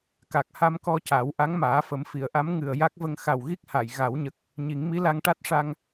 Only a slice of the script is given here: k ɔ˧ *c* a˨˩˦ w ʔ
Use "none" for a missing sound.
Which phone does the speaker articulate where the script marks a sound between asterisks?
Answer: c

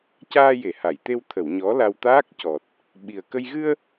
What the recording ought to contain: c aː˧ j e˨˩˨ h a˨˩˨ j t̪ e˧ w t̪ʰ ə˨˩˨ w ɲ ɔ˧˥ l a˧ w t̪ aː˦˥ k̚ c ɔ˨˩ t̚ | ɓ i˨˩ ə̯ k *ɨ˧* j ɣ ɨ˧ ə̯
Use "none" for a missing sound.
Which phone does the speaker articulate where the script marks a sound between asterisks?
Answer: ə˧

